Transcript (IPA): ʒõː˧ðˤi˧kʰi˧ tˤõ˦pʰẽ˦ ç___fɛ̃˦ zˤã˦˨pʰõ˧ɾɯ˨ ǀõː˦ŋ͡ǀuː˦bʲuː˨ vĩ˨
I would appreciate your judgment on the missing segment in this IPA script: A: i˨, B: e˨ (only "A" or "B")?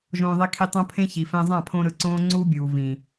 A